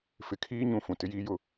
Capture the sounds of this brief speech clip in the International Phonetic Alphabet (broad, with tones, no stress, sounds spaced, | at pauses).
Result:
f ɪ˨ kʰ iː˦ ɲ ũ˨ f ũ˨ t ɪ˦ j iː˦ j ʊ˦